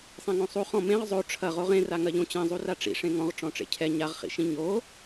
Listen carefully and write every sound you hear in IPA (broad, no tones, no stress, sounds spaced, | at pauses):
sˤ ẽ ŋ õ sˤ u χ ɔ̃ m ẽ ʁ zˤ o ʈ͡ʂʰ ɐ ʁ o ʁ ẽ r a ŋ ɐ ʎ õ t͡ɕ ɛ̃ zˤ u r a ʈ͡ʂ ḭ ʂ ẽ ŋ ɔ̃ ʁ ʈ͡ʂ ɔ̃ ʈ͡ʂ ḛ cʰ ɛ ɲ a ʁ χ ḭ ʃ ĩ ɲ o